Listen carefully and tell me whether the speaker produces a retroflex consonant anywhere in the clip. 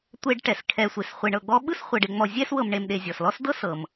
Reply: yes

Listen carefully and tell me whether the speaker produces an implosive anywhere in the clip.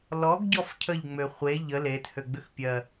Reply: no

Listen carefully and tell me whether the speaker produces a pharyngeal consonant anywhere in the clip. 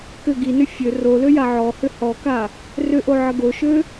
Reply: yes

